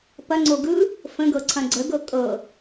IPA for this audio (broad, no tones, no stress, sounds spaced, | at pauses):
p ɐ ŋ͡ǀ o ɡ ɯ | f ə̃ ɡ ɤ ǀʰ ɐ̃ ɡ͡ǀ ə ɡ ɤ kʼ ɤ